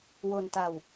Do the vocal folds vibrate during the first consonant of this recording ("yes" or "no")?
yes